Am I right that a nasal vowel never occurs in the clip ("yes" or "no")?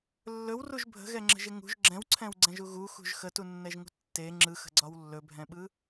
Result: no